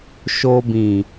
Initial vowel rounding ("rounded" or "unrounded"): rounded